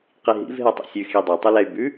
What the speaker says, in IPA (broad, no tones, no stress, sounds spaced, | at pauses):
q i ɦ ḭ v ɦ ɛ tˤ ḭ sʲ ʉ x i dˤ ɛ tˤ u l ɛ y̯ b ʉ